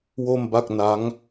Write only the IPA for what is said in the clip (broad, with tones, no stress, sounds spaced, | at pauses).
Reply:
w o˥˩ m b a˥˩ k̚ n a˦˥ ŋ